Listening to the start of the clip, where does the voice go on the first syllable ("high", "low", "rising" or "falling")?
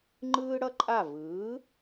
high